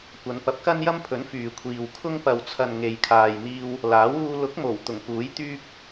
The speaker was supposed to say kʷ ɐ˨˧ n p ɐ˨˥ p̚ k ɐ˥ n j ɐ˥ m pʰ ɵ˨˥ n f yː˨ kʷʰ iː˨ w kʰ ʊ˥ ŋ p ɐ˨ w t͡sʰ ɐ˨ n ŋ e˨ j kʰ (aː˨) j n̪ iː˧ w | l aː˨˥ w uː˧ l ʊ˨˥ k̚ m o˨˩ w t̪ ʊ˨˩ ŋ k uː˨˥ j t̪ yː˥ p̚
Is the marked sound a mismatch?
no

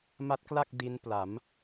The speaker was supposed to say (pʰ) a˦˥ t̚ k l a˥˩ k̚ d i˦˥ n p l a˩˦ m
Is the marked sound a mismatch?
yes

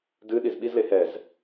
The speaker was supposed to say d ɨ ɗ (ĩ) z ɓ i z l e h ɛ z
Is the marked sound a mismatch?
yes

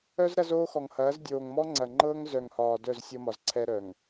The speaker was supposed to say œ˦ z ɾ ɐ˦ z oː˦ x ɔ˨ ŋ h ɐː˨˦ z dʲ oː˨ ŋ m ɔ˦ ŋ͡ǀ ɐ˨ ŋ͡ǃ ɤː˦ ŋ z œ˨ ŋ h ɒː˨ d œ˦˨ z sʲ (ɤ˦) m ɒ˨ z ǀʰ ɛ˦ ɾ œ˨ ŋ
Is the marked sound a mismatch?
no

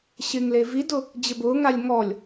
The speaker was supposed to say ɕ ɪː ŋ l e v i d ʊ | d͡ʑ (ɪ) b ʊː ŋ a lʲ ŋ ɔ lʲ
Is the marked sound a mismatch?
no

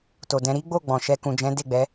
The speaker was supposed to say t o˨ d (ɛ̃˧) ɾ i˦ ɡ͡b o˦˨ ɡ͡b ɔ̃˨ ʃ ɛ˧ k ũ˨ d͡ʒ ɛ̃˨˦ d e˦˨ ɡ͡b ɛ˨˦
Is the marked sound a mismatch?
yes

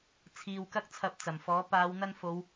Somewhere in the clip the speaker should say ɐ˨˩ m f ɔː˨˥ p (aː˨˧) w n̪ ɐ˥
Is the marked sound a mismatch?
no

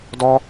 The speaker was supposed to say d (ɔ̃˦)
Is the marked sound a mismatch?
yes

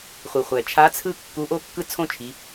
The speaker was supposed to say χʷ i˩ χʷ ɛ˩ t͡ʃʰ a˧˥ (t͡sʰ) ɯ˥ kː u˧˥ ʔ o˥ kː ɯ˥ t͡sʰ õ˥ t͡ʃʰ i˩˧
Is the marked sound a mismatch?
no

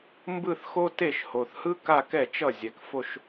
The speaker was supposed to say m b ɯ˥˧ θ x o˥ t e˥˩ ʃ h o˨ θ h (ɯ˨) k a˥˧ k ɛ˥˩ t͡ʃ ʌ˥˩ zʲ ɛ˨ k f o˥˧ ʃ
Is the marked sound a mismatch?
yes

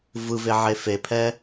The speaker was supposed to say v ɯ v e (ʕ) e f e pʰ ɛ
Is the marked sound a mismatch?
no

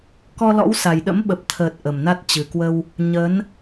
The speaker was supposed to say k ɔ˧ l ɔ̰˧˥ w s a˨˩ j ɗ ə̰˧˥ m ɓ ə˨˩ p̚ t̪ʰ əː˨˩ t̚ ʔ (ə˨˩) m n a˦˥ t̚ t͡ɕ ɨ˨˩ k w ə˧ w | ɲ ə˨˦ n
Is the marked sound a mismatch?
no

